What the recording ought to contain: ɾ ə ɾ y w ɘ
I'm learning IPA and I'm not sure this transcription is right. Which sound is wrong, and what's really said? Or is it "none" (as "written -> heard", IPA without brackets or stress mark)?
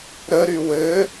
none